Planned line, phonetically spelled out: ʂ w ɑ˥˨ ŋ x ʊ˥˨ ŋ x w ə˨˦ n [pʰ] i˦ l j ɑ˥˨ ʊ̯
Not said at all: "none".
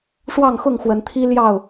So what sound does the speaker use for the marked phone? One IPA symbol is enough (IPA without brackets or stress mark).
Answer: t̪ʰ